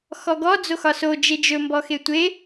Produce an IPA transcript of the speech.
x ɔ ɡ ɔ d͡z o x ɒ s o d͡ʒ e d͡ʒ ɵ m b ɔ x e tʷ e

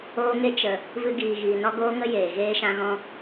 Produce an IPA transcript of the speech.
oː˧ ŋ e˧ t͡ʃ ə˨ | v ɨ˧ ɡ iː˨ ɣ iː˨ n ɔ˦ ɡ oː˦ ŋ ə˦ j eː˨ ɣ eː˧ ʃ ã˧ ɣ ɔ̃˧

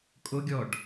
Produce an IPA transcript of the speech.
kʼ o ɡʲ ɔ ɖ

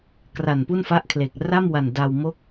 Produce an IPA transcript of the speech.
k r a˨˩ n p u˥˩ n f a˥˩ ʔ kʰ l e˨˩ k̚ r a˥˩ m w a˨˩ n d a˧ w m o˦˥ k̚

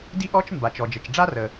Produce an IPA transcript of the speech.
d i˥ ʔ ɔ˥ t͡ʃ m b a˩ t͡ʃ ɔ˩ d͡ʒ ə˩ t͡ʃ ɖ͡ʐ a˥ r ə˩

